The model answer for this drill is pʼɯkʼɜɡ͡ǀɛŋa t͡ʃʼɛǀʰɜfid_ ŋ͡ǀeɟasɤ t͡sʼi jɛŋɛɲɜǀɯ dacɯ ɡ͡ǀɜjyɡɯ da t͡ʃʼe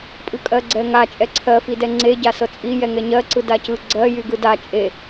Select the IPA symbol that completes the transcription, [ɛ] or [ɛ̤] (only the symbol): ɛ